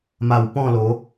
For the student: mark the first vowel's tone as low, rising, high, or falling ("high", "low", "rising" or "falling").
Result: low